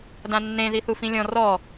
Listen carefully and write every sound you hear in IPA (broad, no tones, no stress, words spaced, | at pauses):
dãnːẽ ðiθufĩlʲɔ̃ rɔ